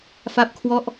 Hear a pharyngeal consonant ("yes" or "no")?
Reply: no